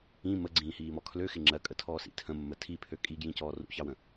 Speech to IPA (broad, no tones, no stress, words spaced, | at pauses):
ĩ məɡ͡ǀĩːhiːmɔ kʰløxɪ ŋ͡ǁɜkʼətʰɔːsḭ tʰə̃mːə tʰipʰø kʼiɡjĩcɔː rṵçɑwə̃